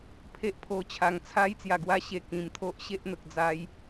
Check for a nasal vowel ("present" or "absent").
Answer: present